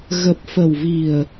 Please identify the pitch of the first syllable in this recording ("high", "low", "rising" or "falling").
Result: low